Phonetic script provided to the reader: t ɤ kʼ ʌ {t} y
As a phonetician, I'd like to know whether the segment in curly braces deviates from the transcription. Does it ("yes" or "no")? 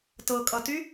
no